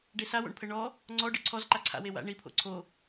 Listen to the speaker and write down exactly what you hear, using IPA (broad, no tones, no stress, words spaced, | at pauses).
ɖesawo̰ɳpʰɘ ɳɔ | ŋ͡ǀɔɖɨ ǀʰɔz ǃaǀʰa̰w ewa̰ ɳipʰo̰ ǀʰo